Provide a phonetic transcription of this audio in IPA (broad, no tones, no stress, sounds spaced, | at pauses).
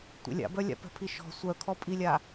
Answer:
tʷ ɛ̰ lʲ a̰ b œ lʲ a̰ p ɛ̤ pʰ i ʃ ɔ̤ sʷ œ kʰ ɔ pʼ i lʲ a